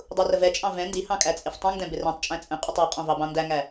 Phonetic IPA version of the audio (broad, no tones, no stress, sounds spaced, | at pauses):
dˤ u r ə v ɛ t͡ʃʼ ɑ̃ v ɛ̃ n d i h ɑ̃ kʼ æ t͡sʼ ɪ f tˤ ũ ŋ d ɛ̃ b ɪ r ɛ̃ tˤ t͡ʃʼ æ̃ t͡sʼ ə̃ qʼ ʊ tˤ ɑ qʼ ɔ̃ v ɑ b ɑ̃ n d æ ŋ æ